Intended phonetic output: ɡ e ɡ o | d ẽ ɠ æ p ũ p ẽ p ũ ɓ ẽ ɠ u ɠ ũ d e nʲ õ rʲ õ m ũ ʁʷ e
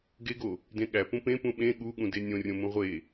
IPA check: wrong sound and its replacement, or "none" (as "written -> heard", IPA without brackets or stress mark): none